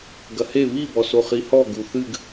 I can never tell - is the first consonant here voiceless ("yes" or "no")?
no